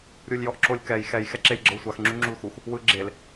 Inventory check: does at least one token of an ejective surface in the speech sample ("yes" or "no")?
no